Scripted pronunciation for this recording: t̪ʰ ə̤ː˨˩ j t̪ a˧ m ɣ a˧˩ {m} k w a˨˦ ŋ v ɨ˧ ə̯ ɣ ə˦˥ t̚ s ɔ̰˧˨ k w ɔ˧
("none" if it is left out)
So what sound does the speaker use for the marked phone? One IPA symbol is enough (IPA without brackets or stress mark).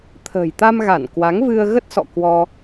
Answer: n